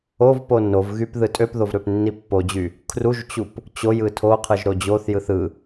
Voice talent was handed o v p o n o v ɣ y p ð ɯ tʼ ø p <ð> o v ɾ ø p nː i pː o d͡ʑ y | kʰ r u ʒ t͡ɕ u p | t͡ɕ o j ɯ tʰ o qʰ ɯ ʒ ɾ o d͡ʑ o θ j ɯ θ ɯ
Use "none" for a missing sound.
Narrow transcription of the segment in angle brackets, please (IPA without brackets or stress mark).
ð